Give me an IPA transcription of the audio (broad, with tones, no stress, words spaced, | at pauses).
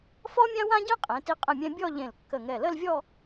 fɔ˥mʲã˥ wã˥ɟɛ̃˥qʼẽ˩˧ti˧ qʼə̃˧˩mʲɛ̃˧ bʲɔ˥˧ʎẽ˧˩lkːə˧˩ŋɛ˧˩ lə˥˧lvʲɔ˥˧